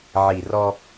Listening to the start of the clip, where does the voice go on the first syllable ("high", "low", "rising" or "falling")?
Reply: low